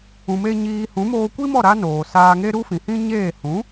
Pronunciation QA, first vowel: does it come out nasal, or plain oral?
nasal